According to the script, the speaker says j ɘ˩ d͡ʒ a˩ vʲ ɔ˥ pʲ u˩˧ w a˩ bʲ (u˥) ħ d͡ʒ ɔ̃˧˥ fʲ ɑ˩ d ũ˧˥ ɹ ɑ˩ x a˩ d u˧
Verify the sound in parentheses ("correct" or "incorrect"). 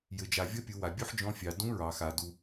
correct